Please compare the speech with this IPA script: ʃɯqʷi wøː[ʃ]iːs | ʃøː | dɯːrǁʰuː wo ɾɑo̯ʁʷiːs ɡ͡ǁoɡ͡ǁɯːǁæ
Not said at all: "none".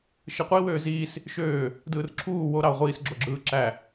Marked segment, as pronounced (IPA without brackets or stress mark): z